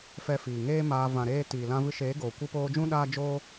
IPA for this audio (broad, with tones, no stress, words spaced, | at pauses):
fɛ˧fiː˨ŋeː˦maː˧ vã˨ɾeː˧tiː˨lã˧ vɨ˧ʃeː˨˦ɡoː˨ kʷɨ˧poː˧d͡ʒũ˦ ɗaː˦d͡ʒoː˦